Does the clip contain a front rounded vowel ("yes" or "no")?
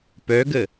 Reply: yes